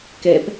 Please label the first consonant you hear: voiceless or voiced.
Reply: voiceless